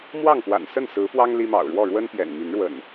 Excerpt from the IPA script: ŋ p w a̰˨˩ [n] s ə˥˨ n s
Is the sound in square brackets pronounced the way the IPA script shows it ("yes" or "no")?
yes